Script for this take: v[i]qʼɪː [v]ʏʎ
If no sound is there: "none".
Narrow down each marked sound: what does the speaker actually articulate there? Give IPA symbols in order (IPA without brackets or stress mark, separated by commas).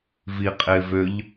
i, v